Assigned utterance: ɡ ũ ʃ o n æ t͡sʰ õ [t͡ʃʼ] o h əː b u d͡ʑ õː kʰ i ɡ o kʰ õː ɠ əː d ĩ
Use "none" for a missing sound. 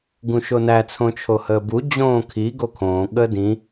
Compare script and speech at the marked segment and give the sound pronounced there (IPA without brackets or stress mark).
t͡ʃʰ